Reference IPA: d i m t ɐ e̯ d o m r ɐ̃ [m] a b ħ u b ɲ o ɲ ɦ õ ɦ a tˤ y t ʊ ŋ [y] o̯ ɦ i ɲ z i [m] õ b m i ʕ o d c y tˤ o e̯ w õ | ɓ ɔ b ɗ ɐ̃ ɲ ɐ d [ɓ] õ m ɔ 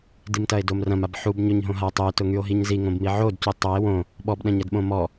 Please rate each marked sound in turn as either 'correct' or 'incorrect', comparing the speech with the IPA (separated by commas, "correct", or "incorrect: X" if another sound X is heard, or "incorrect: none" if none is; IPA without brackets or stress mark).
correct, correct, incorrect: ŋ, correct